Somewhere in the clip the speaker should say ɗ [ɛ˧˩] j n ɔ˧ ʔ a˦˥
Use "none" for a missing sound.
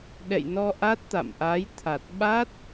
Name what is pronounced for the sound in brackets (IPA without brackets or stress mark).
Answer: ɛ̰˧˨